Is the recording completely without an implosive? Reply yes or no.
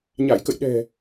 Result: no